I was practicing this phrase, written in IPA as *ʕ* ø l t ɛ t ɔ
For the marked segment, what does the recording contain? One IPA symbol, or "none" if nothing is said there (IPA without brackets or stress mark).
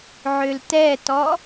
ʕ